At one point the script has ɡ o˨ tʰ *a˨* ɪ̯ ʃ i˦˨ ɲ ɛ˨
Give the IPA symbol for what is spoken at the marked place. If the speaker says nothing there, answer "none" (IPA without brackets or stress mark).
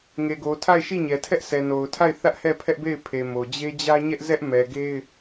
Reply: a˦˨